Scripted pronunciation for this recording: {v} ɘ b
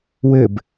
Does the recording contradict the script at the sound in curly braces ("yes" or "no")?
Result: yes